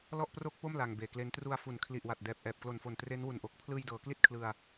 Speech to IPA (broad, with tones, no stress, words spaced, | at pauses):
lɔ˥˩ʔpro˥˩k̚po˥˩m la˧ŋbeː˨˩kle˦˥n tru˧a̯ fu˨˩n kʰli˨˩ʔwa˨˩t̚ dɛː˨˩p̚ ʔɛː˨˩p̚klo˨˩nfo˨˩n tre˦˥nwu˨˩nʔo˨˩k̚ pʰlɯː˧jdɤː˩˦ kli˥˩t̚kʰlɯ˧a̯